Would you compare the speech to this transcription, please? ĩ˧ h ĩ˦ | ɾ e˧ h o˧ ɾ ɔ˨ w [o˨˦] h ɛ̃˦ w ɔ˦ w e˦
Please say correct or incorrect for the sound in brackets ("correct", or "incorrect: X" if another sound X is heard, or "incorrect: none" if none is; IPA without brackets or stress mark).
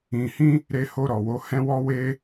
correct